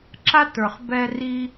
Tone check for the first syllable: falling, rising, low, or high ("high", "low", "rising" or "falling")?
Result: high